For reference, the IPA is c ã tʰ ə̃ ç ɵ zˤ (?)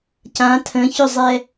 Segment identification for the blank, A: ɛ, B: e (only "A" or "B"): A